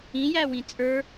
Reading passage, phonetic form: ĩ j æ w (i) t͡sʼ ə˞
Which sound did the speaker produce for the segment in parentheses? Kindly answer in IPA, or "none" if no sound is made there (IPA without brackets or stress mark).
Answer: ĩ